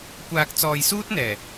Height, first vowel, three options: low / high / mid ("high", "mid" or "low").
low